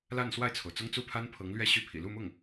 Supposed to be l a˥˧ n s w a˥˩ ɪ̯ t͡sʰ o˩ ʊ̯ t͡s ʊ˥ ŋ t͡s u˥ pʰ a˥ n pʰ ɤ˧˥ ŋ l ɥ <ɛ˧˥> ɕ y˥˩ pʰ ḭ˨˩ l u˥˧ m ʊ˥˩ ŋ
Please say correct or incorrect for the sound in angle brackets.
incorrect